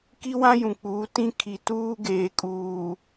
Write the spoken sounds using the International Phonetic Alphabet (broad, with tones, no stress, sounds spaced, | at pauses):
k i˦ w ã˦ j ũ˨ k͡p uː˨˦ t ĩ˦ kʰ i˨ t uː˦ ɡ eː˨ kʼ uː˨